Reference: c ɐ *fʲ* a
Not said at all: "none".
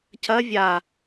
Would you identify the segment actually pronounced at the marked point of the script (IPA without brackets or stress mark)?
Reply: vʲ